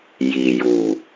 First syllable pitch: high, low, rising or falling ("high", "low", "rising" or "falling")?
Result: low